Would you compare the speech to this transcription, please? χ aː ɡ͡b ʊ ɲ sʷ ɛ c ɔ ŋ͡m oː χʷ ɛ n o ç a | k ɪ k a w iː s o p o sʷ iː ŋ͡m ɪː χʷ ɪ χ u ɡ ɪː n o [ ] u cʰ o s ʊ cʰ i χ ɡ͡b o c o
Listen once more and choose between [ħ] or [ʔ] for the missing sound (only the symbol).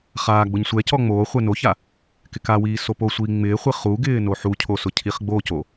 ħ